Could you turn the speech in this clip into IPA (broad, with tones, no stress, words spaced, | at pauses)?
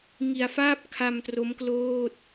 ŋi˨˩a̯faː˥˩p̚ kʰa˧mtro˦˥mkloː˥˩t̚